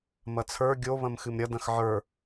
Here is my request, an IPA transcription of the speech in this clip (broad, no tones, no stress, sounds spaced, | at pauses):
m ɐ t͡sʰ ə˞ ɡʲ o β ɐ̃ m x ɨ m ɾʲ ɐ d ɐ̃ x ʕ ə˞